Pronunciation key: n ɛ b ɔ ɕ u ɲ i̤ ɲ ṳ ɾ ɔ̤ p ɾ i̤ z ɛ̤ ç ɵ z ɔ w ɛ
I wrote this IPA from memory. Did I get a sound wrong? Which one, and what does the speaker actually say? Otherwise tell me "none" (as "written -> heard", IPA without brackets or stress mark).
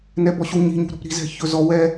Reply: none